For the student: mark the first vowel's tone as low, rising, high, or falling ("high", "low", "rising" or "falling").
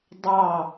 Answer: falling